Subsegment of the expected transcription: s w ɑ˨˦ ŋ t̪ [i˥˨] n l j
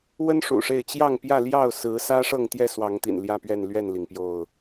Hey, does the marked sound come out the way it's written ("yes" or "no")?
no